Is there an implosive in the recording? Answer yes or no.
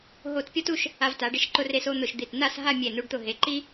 no